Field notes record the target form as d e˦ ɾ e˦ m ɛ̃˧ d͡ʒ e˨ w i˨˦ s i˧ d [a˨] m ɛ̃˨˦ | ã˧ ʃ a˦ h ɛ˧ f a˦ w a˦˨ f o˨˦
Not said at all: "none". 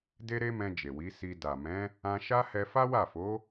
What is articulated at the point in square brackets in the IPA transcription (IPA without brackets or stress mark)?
a˨